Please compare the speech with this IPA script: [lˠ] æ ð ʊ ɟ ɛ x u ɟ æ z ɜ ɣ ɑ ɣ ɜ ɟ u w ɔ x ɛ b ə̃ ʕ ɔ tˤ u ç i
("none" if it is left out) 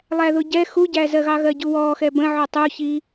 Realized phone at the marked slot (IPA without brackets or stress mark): lˠ